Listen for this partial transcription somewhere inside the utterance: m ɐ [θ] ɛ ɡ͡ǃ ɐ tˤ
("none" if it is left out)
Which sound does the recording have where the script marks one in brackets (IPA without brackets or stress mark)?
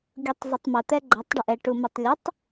t̪